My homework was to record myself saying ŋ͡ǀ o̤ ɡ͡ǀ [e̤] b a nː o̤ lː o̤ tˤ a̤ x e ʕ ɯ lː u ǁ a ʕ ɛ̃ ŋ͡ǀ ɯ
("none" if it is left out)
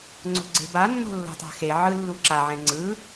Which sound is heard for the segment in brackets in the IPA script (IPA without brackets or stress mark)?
e̤